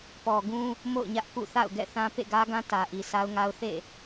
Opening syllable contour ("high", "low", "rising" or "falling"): low